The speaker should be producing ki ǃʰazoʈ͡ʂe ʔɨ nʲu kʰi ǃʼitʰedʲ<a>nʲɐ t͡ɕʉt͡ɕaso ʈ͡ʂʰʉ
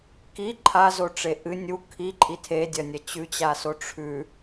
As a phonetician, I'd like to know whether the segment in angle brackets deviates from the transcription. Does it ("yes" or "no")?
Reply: yes